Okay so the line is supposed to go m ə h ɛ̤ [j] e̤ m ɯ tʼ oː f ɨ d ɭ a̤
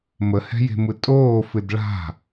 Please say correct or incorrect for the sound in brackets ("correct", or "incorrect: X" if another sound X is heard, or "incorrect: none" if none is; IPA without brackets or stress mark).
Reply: correct